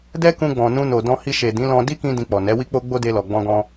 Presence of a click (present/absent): absent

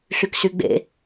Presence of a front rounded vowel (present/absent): present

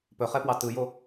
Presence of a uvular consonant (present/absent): present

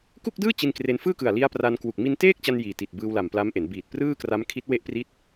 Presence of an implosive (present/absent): absent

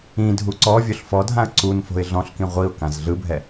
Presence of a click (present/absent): present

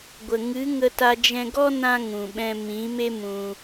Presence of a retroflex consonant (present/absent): absent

